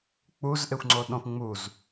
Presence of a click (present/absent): present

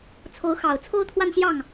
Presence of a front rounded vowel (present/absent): absent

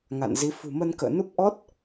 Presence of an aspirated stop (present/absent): absent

